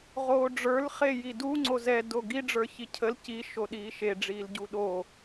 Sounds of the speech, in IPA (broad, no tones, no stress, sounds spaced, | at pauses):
ʁ oː ɖ͡ʐ ə˞ l χ e j i d u ŋ͡ǀ o z ɛ d o ɡ i ɖ͡ʐ ə˞ ç i cʰ ə l c i ʃ o ɗ iː ʃ e ɖ͡ʐ iː l ɟ u ɗ o